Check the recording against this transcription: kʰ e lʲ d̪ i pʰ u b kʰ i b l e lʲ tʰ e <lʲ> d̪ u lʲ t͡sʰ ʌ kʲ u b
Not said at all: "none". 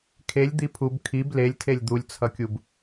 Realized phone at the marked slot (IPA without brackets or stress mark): lʲ